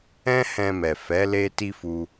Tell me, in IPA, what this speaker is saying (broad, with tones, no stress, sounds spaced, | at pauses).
ɛ̃˦ h ɛ̃˧ m ɛ˨ f ɛ˨˦ l e˦ t i˦ f u˦